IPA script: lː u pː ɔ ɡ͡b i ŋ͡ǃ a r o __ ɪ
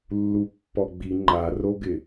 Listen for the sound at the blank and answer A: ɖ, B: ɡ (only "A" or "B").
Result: B